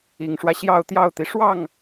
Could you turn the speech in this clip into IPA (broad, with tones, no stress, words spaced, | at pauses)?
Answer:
i˨˩ŋʂwä˦ ɕjɑ˥˧ʊ̯t̪jɑ˥˩ʊ̯t̪i˩ ʂwɑ˥˩ŋ